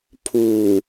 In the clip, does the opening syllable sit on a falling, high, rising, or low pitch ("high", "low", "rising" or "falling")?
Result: low